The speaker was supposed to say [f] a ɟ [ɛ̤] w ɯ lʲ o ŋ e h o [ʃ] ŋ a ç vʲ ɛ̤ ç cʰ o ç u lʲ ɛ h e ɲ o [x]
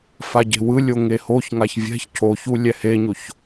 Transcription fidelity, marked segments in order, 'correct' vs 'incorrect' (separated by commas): correct, incorrect, incorrect, incorrect